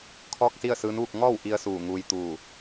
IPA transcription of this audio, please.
kʰ ɔː˥˨ k̚ s i˥˨ ə̯ s ɯː˧˥ n ʋ u˥˨ k̚ ŋ ɔː˥˨ w ʔ i˧ ə̯ s uː˧˩ ŋ uː˧ j t̪ uː˧˩

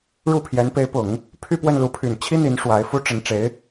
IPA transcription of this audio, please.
ɻ u˥˩ pʰ j ɛ˧˥ n p e˧˥ ɪ̯ p ʊ˨˩˦ ŋ | pʰ y˥˧ p w ə˥˩ n l u˧˥ pʰ y˨˩ n t͡ɕʰ i˥ n̪ i˧˥ n ʂ w a˧˥ ɪ̯ f u˥ ʈ͡ʂ ə˧˥ n ʈ͡ʂ e˧˥ ɪ̯

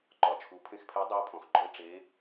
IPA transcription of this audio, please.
ǃ ɒ˩ t͡ʃʰ u˩˧ pʰ ẽ˧ x pʰ ɛ˧˥ dˤ u˧˥ o̯ pʰ ɔ̃˩ x ɡ͡ǃ ɔ˧ e̯ ʈ͡ʂ e˩˧

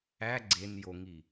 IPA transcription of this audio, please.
æ ɡ͡ǀ e n j o ŋ i

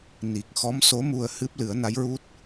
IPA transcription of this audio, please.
n i˨˩ k̚ x ɔ˧˥ m s o˧˥ m u˧ ə̯ h ɨ˦˥ p̚ l ɨ˨˩˦ ə̯ n a˧˥ j ɹ u˦˥ t̚

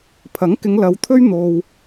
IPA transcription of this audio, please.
pʰ ɐ˨˥ ŋ k ɪ˨˧ ŋ l ɐ˨˧ w t̪ʰ ɵ˥ ɥ n̪ o˨ w

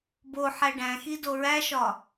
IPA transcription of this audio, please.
b o ħ æ ɖ æ̃ x i d o ɹ æ ʃ ɒ

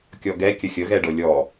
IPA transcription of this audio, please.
kʲ ɔ ɡ ɛ kʲ ə xʲ ə ɣ ɛ ɖ ɤ lʲ ɔ

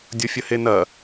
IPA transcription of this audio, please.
dʲ o fʲ ə h e n ɐ

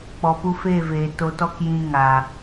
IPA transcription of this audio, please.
k͡p ɔ˨ p u˧ f eː˦˨ v eː˨ t o˧ t ɔ˦ k j ĩ˧ ŋ aː˨

